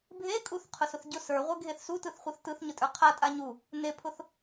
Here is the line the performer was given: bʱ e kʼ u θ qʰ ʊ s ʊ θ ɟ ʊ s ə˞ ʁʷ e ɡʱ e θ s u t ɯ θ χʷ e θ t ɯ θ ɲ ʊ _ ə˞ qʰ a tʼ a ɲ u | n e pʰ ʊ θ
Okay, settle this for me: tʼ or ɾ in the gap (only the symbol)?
tʼ